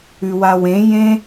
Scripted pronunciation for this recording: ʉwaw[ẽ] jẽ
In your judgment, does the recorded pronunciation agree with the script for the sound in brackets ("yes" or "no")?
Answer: yes